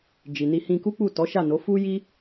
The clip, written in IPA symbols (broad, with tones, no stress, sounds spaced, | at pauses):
d͡ʒ i˨ n i˧ h ĩ˧ k u˦ k͡p u˦˨ t ɔ˨˦ ʃ a˦˨ n o˨˦ f u˦ j i˦